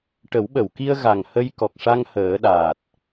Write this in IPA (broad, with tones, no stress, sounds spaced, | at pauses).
ʈ ə˨˩˦ w ɓ ə˨˩˨ w k i˧ ə̯ ɣ a˨˩ ŋ h ə˧ j k ɔ˨˩ k̚ ʂ a˧ ŋ h əː˨˩˦ ɗ aː˨˩ t̚